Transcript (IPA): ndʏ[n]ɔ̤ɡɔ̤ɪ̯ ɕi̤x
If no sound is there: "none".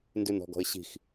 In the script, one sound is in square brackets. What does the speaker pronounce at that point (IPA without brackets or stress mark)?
n